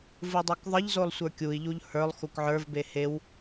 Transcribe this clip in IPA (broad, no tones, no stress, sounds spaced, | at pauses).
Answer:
v ɯ dˤ o k ðˤ ə ʎ z o lˠ sʷ ə˞ kʲ u i̯ ʎ u ʎ h ə˞ lˠ x u k ʕ ə˞ v b e h e w